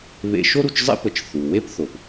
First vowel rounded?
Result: no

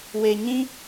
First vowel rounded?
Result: no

